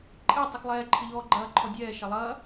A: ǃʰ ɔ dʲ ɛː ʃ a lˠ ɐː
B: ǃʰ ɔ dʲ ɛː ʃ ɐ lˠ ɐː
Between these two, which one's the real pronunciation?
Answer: B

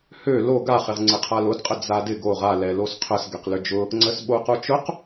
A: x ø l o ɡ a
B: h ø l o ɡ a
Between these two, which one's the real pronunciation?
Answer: B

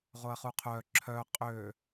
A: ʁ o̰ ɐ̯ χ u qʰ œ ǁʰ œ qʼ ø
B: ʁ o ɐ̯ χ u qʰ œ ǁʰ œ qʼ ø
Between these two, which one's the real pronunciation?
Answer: B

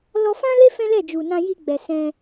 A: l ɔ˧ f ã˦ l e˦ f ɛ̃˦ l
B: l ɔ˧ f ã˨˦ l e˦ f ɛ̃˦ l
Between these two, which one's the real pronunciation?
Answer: A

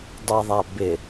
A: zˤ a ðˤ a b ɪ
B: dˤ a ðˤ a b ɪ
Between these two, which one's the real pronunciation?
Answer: B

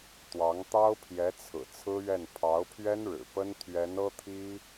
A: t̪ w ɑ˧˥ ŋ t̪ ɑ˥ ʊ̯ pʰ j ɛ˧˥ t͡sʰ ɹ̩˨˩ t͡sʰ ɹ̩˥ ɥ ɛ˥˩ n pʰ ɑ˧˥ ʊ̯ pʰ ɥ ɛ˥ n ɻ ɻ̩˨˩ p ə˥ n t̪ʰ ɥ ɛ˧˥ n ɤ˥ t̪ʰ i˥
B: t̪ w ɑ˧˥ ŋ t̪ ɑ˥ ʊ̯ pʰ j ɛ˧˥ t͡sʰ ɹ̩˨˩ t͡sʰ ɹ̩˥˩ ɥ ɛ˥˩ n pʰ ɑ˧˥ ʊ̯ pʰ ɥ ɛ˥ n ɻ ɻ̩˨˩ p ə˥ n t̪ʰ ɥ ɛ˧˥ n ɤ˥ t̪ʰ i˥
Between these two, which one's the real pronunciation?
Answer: A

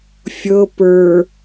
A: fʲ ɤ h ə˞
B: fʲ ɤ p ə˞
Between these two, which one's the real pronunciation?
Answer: B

